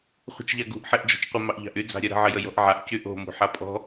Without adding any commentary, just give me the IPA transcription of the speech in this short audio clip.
χʷ ə̤ t͡ʃ ʎ a ɡ ṳ ʔ ħ e ʔ d͡ʒ ɔ̤ t͡ʃ qʷ ə m ɑ ʔ ʎ ɑ̤ ʔ y d͡z ɑ̤ ɾʲ œ ɾ ə̤ ʕ ə j ə j ɔ̤ ʔ ʕ a ʔ c y ʔ o̤ m ṳ ħ a pʼ ɔ̤

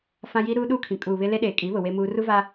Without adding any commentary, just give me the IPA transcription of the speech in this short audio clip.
f ã˦ j i˦ ɾ uː˦ ɗ uː˦ kʰ ĩ˨ kʼ uː˨ β ɪ˦ l e˦ ɗ eː˨ kʼ i˨˦ β ʊ˨ w e˦ m uː˦ r u˦ v a˦

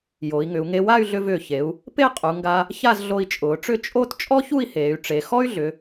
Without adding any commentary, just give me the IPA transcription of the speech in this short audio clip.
j o˩˧ i̯ ŋ ʏ˩˧ u̯ ŋ e˧ w a˥˧ y̯ ɮ ʏ˧ v ʏː˧˩ ç e˩˧ u̯ | p e˥˧ qʼ u˩˧ ŋ ɡ a˧ | ç a˥˧ z ɮ o˧ i̯ t͡ʃʼ ʊː˩˧ ʈ͡ʂ ʏ˥˧ t͡ʃʼ o˥˧ t t͡ʃʼ ɔ˥ ç u˥˧ i̯ h eː˩˧ y̯ ʈ͡ʂ e˩˧ x ɔ˥ y̯ ɮ ʏ˩˧

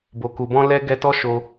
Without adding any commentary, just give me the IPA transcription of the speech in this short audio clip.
b o˨ k u˨ b ɔ̃˧ l ɛ˧ ɡ ɛ˧ t ɔ˦ ʃ o˧

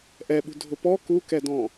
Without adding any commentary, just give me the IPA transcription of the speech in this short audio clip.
ʔ ɛ ɓ ṳ dʱ ʊ p ɔ k u k ɛ d ɔ̃

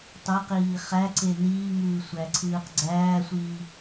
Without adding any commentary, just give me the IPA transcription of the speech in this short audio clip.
tˤ o q iː χ æ ǀ e n iː ŋ ɯː sʷ æ ǀʰ ɯː q ɡ͡ǀ æː sʷ iː

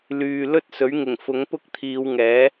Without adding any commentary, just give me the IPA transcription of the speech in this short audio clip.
l yː˨ l ɵ˥ t̚ s ɵ˨˥ ɥ ŋ ɪ˨˩ ŋ f ʊ˨˥ ŋ p ʊ˥ k̚ t̪ʰ iː˨˧ w ŋ ɛː˨˥

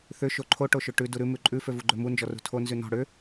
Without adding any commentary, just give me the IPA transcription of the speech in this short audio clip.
θ ʏ ʃ o ǃʰ o ʈ o ʃ ø ʈ ʉ d u ɾ ʉ m ʉ ǃʼ ʉ f ø v u ɡ͡ǃ ø m u n d͡ʒ ɔ r ṳ tʰ o n z ʉ n ɔ̤ ɽ ʏ

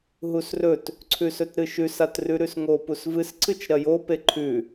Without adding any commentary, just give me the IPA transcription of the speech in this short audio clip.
ɦ u s r ɵ t | ǀʰ ʉ s ɵ t ɾ ɨ ʃ ʉ s a t r ʉ ɾ ʉ s ŋ o p u s v ɨ s ǀʰ ɨ t͡ʃ ɾ ɐ j o p e ǃʰ ʉ

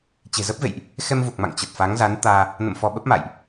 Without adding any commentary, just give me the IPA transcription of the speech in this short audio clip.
t͡ɕ e̤˨˩ z ə˦˥ p̚ v ḛ˧˨ j ʔ | x ɛ˧ m v u˨˩ k̚ m a̰˧˨ ŋ t͡ɕ ə˨˩ t̚ f a˨˦ ŋ z a˨˦ n t̪ aː˧ | n ə̰˧˨ m f ɔ˧ ɓ ə˦˥ p̚ m a̰ː˧˨ j ʔ

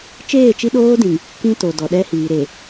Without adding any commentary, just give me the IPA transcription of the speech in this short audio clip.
t͡ʃ eː˦˨ t͡ʃ i˦ ɗ oː˦ d ĩ˨ ŋ | k ĩ˦ t o˨ d ɔ˨ ɗ ɛ˦ h iː˨ ɾ e˨

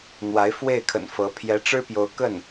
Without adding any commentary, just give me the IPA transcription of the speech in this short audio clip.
n̪ w a˧˥ ɪ̯ f w e˥˩ ɪ̯ kʰ ə̰˨˩ n f ɤ˧˥ pʰ j ɛ˧˥ ʈ͡ʂ ɻ̩˥ p j o˧˥ ʊ̯ k ə˥˩ n

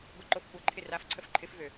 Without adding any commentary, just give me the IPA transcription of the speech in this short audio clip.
ɡʷ ə ǃ o f kʷ ɐ ǃʰ ɪ r a f ǀʰ ə f ǃʰ ɪ f v ø

